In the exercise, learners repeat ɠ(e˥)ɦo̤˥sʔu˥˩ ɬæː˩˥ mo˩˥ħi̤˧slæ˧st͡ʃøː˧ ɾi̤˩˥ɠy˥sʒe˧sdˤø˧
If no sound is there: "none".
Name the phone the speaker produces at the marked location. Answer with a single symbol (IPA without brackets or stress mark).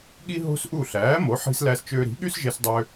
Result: i˥